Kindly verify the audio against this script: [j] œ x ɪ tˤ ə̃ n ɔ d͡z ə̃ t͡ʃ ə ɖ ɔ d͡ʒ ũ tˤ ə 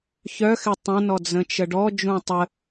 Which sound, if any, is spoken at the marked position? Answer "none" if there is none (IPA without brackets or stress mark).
ç